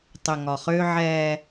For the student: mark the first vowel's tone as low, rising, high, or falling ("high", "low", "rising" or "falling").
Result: low